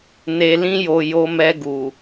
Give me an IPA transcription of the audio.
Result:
n e˨ l ĩ˧ j o˨ j o˧ m ɛ˧ ɡ u˨

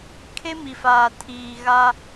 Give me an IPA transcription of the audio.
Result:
kʰ e˦ m i˨ f aː˨ tʰ iː˨ ɣ a˦

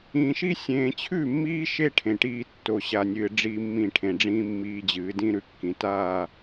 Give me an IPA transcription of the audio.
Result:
ĩː˨ ʃ i˦ sʲ ẽː˨ t͡ɕʰ ʉ˦˨ mː iː˦ ʃ e˦ ʈʰ ẽ˨ ʈ iː˦ tː o˨ ɕ a˨ nʲ ɨː˨ ɖ͡ʐ iː˦ mː ĩ˦˨ ʈʰ ẽ˨ ɖ͡ʐ ĩː˦ mː iː˦ d͡ʑ ɨː˨˦ d ĩ˦ ɾ ʉ˨ kː ĩ˨ t aː˦˨

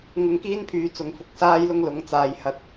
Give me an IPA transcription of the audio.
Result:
ŋ ʊ˧ ŋ k iː˥ n pʰ yː˨˧ t͡s ʊ˨ ŋ f ʊ˧ k̚ s aː˥ j l ʊ˥ ŋ l ʊ˨˧ ŋ t͡s aː˨ j h ɐ˨ t̚

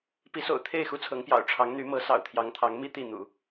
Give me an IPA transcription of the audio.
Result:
p i˧˥ s o̰˨˩ ʊ̯ t̪ʰ e˥˩ ɪ̯ x u˥ t͡sʰ ɤ˧˥ ŋ p j ɑ̰˨˩ ʊ̯ ʈ͡ʂʰ ɑ˧˥ ŋ n̪ y˧˥ m ɤ˧˥ s ɑ̰˨˩ ʊ̯ t̪ʰ j ɑ˧˥ ŋ t̪ʰ ɑ˧˥ ŋ m i˥ t̪ i˥˩ n̪ ṵ˨˩˦

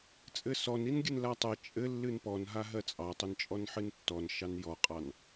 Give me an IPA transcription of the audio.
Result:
t͡sʼ ɘ s ɔ n i n ɡʲ ɨ n l a tˤ ɘ t͡ʃʼ ɘ lː ɨ n p ɔ n ɦ a ɦ ɜ t͡sʼ ɑ tˤ ɘ n t͡ʃʼ ɔ n ħ ɨ n tː ɔ n ʃ ɑ n j ɔ qʼ ɑ n

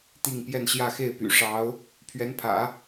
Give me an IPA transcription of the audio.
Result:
t̪ i˥˧ ŋ p j ɛ˥˧ n ɕ j ä˥˧ x e˥˩ ɪ̯ p y̰˨˩ ʂ ɑ˧˥ ʊ̯ | pʰ ɥ ɛ˧˥ n pʰ ä̰˨˩˦

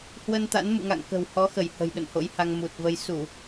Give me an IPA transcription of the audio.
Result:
h w ə˧ n t̪ a̰˧˥ n m ṵ˧˨ ŋ a̰˧˨ ŋ k ə̤˨˩ w h ɔ˨˦ x ə˧˩ j h ə̤˨˩ j ɗ ə̰˧˨ n h o̰˧˥ j h a˧ ŋ m u˨˩ t̚ v ə˧ j s u˧˩˨

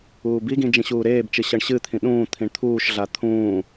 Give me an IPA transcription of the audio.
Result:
uː b i ɡ ĩ d͡ʒ ĩ ɕ uː ɾ eː b t͡ʃ ɨ ɕ ʌ ɳ ɕ ɨ t̪ʰ ĩ ɗ ũː t̪ʰ ĩ ɳ t̪ʰ uː ʃ ɮ a t̪ʰ ũː

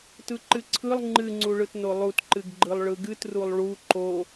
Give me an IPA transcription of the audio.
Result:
t ɯ ǃ ɨ ǀʰ ɯ lˠ ŋ͡ǃ ɨ ŋ͡ǀ u ɭ ɯ t n o lˠ u t ǃ ɨ ɡ ɡ͡ǃ ɯ lˠ ɭ ɯ ɡ ɨ t r u lˠ ɭ u ǃ o

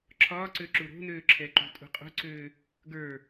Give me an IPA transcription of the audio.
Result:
ǁʰ ɒː ǀ ø ǁ u ɾ o̤ n øː ǁʰ ɛ ǃ ṳ tʼ ṳ qʼ o̤ ǀ øː | ɡ ə˞

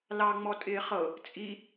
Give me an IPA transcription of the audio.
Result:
l ɑ ŋ͡m ɔ tʼ ɪː χ ɤ | t͡sʼ i

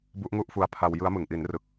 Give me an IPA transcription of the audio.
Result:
b u˦˥ ʔ ŋ u˥˩ ʔ f u˧ a̯ pʰ a˧ w j ɯ˦˥ a̯ m ɯ˨˩ ŋ ʔ i˩˦ n r ɯ˨˩ k̚

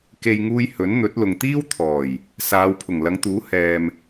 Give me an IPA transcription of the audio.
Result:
k e˨ j ŋ uː˧ j h ɵ˨˥ n n̪ ɵ˨˥ t̚ l ʊ˨ ŋ t̪ iː˥ w t̪ʰ ɔː˨˩ j | s aː˨˧ w pʰ ʊ˨˩ ŋ l ɐ˨˧ ŋ t̪ uː˨˥ h ɛː˨ m

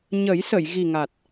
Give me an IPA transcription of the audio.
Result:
ɲ ə˨˩˦ j s ə˨˩˨ j ɣ i˨˩ ŋ a˨˩ t̚

